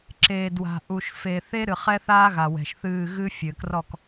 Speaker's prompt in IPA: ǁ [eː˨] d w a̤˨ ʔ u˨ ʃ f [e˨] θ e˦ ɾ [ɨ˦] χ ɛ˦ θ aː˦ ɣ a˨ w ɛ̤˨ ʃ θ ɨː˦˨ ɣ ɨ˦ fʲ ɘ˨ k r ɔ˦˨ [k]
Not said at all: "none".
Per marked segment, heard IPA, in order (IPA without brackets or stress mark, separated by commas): eː˨, e˨, ɨ˨, k